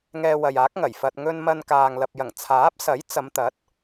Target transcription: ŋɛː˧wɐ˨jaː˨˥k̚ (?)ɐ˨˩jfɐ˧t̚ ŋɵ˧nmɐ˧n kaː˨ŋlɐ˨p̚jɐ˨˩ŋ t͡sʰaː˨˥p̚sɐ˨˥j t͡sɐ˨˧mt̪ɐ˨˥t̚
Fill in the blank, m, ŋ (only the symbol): ŋ